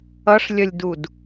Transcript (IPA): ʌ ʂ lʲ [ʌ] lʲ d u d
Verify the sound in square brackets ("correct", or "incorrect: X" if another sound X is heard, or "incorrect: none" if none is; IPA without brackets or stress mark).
correct